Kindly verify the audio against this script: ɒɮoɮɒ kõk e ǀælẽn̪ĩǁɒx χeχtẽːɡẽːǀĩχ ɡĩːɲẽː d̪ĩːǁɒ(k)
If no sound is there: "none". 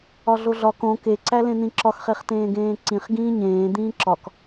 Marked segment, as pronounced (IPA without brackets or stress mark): k